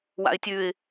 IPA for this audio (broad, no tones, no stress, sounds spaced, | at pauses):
w a̰ ɪ̯ tʲ ʉ ɪ̯